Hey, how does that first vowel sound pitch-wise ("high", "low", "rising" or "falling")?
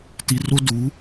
low